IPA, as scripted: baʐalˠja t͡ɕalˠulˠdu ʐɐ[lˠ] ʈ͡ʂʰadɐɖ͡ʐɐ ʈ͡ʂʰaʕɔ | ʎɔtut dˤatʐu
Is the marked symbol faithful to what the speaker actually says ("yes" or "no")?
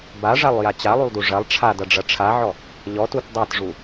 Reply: yes